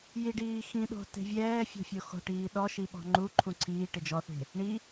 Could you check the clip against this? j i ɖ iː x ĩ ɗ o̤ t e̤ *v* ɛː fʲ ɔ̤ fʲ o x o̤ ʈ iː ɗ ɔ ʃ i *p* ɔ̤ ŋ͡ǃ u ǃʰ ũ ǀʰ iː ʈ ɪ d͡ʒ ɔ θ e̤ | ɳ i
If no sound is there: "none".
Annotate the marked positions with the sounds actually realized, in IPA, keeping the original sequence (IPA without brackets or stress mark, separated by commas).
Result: vʲ, ɓ